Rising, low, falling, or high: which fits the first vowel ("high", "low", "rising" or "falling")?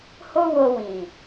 high